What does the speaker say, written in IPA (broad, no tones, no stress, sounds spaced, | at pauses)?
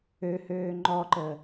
ø h øː ŋ͡ǃ ɔ ǃ ə